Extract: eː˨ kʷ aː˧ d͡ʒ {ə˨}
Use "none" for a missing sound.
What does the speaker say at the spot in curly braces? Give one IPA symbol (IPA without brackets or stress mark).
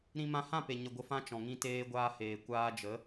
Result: ə˨˦